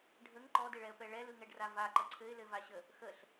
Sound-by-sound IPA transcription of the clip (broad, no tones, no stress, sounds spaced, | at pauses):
ɖʱ ə ŋ ǃ ɔ d ɘ ɭ ɛ ə̯ p ɛ ɭ ɛ l ɯ ŋ ɛ ɖ r a v a ǃ ə ǀʰ ɘ ɪ̯ l ɘ v a ɕ ə | x ə ɬ